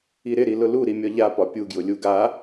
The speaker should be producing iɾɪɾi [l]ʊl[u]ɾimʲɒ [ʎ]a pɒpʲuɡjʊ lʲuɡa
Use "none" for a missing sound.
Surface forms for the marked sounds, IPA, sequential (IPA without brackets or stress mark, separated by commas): l, u, ʎ